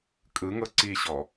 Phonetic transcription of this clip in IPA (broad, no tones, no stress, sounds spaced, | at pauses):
kʼ ɯ ŋ ɤ ǀ i ɕ ɔ